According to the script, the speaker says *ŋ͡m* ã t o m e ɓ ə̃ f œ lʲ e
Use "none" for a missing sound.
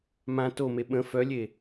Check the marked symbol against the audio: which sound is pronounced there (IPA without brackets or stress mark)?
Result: m